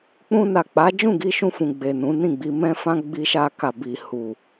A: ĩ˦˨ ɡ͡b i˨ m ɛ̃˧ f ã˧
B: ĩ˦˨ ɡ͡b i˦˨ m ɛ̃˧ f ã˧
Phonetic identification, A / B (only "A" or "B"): A